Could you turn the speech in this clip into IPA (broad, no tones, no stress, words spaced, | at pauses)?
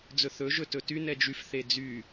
d͡zɵθɵ ʒɵtɵty nɛd͡ʒyf θed͡zy